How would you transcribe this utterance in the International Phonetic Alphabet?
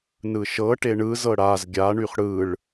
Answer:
nɯʃɤʈe ɳɯzɤ ɽaz ɡʲaɳyχ ɽɯɭ

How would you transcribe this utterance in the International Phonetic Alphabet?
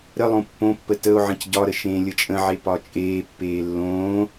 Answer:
ɾəlˠõ pːõpːə təo̯ʕə̃c ɟɒɾə ʃẽːlʲət͡ʃʼə̃ʕe pɒt͡ʃʼeːpːeː lːõː

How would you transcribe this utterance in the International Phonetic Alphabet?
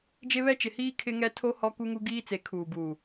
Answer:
d͡ʒe˦βɛ˦t͡ʃɪ˨hiː˦ kʰɪ˦ŋɛ˦ tʰo˦ hɔ˦ku˦ŋu˦ ɡiː˦t͡se˨˦ kʰuː˨buː˨

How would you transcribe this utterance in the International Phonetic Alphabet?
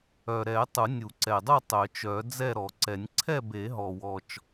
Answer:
œ˨˩ɾɛ˨˩˦ tˤu˨˩˦nʲu˨˩˦ǀɛ˨˩dˤu˥˨ tˤœ˨˩˦t͡ʃœ˨˩˦ d͡zɛ˥˨ɾɔ˨˩˦ǀɛ˨˩˦nʲ ǀʰɛ˥˨be˨˩˦ɦɔ˨˩wɔ˨˩t͡ʃ

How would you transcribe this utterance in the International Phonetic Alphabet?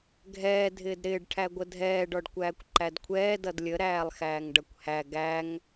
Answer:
ɡʱɛː dʱɪːdɾɪːɖ ʈʰæɡʷədʱɛː ɖɔɖkʷæːkʷǃædkʷʰɛː dʌdlʲə ɾæːlˠxæːŋɖʌkʷhæ ɡæŋ

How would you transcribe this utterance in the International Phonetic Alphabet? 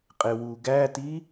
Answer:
qʼewuɡæti

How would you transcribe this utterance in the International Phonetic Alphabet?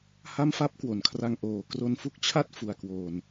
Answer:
ha˥˩mfa˥˩p̚kwo˩˦nkʰra˧ŋ ʔoː˨˩ kro˧nfu˥˩k̚t͡ɕʰa˥˩t̚ fu˨˩a̯kwoː˨˩n

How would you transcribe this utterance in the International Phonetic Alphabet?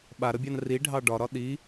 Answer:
ɓaɾəbʲɑn riɖʱɑ ɖɒɾɒ ɗi

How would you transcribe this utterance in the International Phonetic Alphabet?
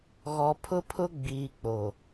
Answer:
ɣɔ˨pʰʊ˦pʰʊ˦ ɡ͡biː˨k͡po˨

